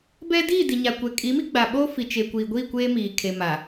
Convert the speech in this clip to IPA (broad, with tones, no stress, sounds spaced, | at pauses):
b ɛ˦ d iː˦˨ d i˨ ɲ a˨ kʷ ɛ˨ kʼ i˨˦ m i˦ ɡ͡b a˨ ɓ oː˦ f i˨ t͡ʃ e˨ kʷ iː˨ ɡʷ iː˦˨ kʷ eː˦ m iː˨ kʰ e˨ m a˨